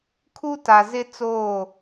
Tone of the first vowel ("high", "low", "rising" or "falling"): high